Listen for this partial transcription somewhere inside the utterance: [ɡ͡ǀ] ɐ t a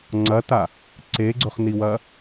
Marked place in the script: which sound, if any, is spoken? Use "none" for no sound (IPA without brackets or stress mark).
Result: ŋ͡ǀ